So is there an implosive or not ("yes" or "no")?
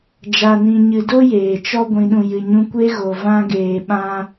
yes